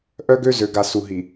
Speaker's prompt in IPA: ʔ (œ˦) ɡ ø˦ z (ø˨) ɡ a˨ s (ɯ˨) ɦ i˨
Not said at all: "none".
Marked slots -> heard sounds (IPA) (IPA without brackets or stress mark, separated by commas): œ˦, ø˨, u˨